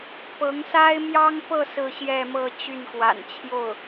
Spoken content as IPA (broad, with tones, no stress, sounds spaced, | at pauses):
p ɤ˧˥ ŋ s a˥ ɪ̯ m j ɑ˥ ŋ p ɤ˥˧ s ɹ̩˥˧ ɕ j ɛ˥˧ m ɤ˥˧ t͡ɕ y˥˩ n k w a̰˨˩ n t͡ɕʰ j o˥˩ ʊ̯